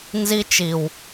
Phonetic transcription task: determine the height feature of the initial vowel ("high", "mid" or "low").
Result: high